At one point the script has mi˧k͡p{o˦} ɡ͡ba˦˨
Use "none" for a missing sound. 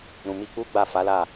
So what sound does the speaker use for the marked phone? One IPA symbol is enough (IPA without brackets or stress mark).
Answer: u˦